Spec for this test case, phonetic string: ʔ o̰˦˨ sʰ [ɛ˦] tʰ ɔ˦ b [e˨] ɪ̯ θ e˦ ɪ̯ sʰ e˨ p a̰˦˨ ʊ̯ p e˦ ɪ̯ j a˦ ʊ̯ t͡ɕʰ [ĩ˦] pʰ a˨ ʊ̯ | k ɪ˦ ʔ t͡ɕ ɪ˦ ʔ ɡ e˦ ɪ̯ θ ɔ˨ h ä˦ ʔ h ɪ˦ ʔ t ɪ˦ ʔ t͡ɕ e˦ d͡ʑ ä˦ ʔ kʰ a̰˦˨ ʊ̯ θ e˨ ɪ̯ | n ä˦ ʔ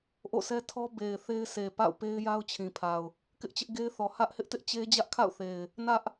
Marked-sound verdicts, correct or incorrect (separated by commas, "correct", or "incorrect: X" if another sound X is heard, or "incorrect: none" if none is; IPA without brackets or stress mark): correct, correct, incorrect: ĩ˨